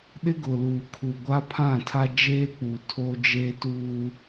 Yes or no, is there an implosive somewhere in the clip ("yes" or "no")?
yes